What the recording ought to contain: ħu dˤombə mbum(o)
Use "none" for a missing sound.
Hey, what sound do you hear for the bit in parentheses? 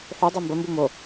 o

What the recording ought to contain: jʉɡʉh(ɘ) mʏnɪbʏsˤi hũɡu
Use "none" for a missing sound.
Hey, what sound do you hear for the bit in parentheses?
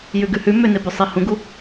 ʉ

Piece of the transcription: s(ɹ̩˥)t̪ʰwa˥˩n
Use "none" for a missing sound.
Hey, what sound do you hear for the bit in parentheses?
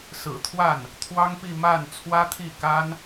ɹ̩˨˩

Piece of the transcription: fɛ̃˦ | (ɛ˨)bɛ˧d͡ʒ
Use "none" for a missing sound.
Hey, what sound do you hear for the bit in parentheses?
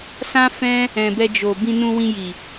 ɛ̃˨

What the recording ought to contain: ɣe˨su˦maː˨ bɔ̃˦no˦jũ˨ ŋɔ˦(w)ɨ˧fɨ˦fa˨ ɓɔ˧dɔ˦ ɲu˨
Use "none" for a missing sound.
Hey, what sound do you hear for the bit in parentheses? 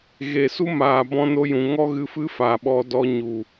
ɣ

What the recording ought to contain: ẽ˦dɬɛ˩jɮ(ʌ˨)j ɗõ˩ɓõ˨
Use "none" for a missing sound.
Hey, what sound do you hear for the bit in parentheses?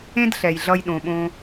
ʌ˨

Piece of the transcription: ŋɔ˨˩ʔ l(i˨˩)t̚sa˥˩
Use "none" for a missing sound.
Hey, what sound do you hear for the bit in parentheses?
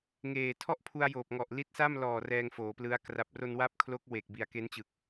i˦˥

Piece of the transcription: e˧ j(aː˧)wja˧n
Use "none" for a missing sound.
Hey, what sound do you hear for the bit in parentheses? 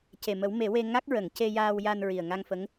aː˧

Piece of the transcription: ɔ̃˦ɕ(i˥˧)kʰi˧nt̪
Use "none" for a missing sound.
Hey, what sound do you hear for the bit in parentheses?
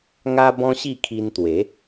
i˥˧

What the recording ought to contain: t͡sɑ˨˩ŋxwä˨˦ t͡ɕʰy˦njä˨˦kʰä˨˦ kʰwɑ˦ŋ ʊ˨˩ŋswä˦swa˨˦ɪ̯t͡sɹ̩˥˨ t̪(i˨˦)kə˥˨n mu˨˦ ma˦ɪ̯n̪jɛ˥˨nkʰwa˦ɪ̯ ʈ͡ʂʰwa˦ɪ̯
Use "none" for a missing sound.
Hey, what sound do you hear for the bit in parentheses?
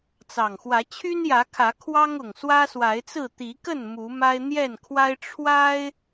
i˨˦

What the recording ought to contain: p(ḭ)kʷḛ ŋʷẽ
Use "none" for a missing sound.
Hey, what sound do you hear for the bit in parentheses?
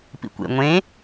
ḭ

